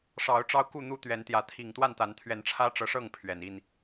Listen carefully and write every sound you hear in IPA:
ʂ ɑ˨˦ ʊ̯ ʈ͡ʂ ɑ˦ ʊ̯ k u˥˨ n̪ u˦ t̪ ɥ ɛ˨˦ n t̪ j ä˨˦ t̪ʰ i˨˩ ŋ t̪ w a˥˨ n t̪ a˨˦ n t̪ʰ ɥ ɛ˨˦ n ʈ͡ʂʰ ä˦ ʈ͡ʂ ɤ˨˦ ʂ ɤ˥˨ ŋ pʰ ɥ ɛ˨˩ n i˥˨ n

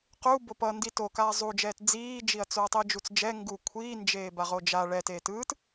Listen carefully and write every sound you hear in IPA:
q u b o p ʌ n d i t o k aː zˤ u d͡ʒ ɛː t d͡z iː d͡ʒ i ɐ̯ t͡s o ɐ̯ tˤ i d͡ʒ u t͡s d͡ʒ ɛ ŋ ɡ u kʷʰ iː n d͡ʒ eː b a ʁ o d͡ʒ a ɭ ɛ t eː t ɯː t

